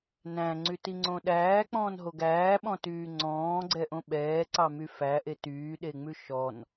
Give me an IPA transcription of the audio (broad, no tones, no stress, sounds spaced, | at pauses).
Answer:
n æ̃ ŋ͡ǀ y t i ŋ͡ǀ õ ɗ æː k͡p ɔ̃ː n ɦ o ɡ æː ɓ ɔ̃ t yː ŋ͡ǀ ɔ̃ː ɡ͡ǀ ɛ ʔ õ ɓ ɛː ǀ ɑ m y f æ ʔ e t yː ɗ e ŋ͡m ʉ ʃ ɔ n